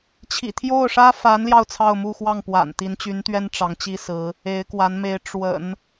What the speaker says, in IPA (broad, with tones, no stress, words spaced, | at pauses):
t͡ɕʰḭ˨˩t̪ʰjo˥˩ʊ̯ʂä˥ fa˧˥nljɑ˧ʊ̯ t͡sʰɑ˥˧ʊ̯mu˥˧ xwɑ˥˩ŋpwa̰˨˩n t̪i˧˥nt͡ɕy˧˥nt̪ɥɛ˥n ʈ͡ʂɑ˧˥ŋt͡ɕi˥sɹ̩˧˥ | e˧˥ɪ̯kwa˧˥nme˧˥ɪ̯ ʈ͡ʂwə̰˨˩˦n